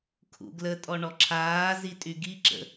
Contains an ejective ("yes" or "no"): yes